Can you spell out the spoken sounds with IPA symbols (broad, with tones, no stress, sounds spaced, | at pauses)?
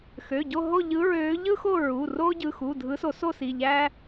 x ø˩˧˩ ɟ o˦˨ ɦ o˦˨ ʎ ɯ˨˦ ɹ ø˨˦ ʎ ɯ˦ x o˦˨ ɹ u˩˧˩ r o˦ ɟ ɯ˩˧˩ x u˩˧˩ dʱ ɯ˨˦ s o˨˩˦ s o˦˨ s i˩˧˩ ʎ æ˦